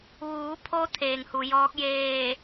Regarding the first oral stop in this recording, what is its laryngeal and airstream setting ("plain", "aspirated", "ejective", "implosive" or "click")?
aspirated